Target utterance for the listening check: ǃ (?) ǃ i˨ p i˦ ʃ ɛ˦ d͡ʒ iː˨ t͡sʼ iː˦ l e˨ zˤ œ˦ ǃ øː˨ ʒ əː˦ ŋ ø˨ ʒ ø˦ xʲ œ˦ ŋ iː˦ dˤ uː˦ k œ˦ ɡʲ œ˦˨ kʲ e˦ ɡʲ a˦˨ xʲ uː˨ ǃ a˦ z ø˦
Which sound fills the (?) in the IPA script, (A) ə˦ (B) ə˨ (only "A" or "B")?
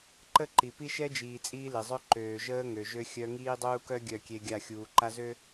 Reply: A